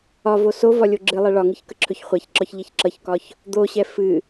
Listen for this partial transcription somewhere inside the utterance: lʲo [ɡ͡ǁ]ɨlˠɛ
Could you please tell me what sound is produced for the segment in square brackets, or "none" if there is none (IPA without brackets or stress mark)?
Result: ɡ͡ǁ